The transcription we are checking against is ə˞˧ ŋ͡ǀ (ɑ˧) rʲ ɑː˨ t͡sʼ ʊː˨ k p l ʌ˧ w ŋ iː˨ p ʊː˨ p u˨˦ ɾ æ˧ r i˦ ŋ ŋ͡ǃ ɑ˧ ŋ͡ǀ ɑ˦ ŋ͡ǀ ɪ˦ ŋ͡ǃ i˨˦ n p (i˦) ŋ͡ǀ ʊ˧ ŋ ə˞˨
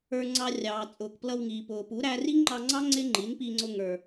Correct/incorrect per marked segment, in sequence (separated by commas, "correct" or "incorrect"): correct, incorrect